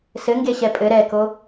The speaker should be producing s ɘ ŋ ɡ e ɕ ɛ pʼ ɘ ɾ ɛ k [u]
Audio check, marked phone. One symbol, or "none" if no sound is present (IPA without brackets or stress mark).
o